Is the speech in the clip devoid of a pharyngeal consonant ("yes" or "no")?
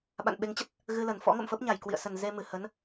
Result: yes